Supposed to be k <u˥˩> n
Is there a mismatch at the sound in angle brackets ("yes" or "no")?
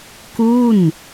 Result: no